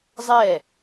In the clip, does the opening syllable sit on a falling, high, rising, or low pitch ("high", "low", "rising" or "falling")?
falling